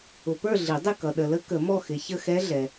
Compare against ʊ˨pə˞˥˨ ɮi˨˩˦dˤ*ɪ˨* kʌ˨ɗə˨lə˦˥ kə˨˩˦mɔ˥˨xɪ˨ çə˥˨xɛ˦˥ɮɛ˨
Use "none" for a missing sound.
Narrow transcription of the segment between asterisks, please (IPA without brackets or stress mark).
ɪ˥˨